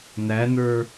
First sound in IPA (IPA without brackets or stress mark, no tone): n